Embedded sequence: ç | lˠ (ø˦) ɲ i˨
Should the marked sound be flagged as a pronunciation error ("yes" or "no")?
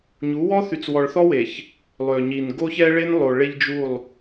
yes